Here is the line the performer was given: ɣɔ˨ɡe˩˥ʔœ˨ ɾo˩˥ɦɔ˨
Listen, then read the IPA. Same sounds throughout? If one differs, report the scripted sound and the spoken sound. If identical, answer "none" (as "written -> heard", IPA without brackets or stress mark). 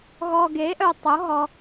ɾ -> tˤ